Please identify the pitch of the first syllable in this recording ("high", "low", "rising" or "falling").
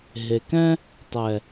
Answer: low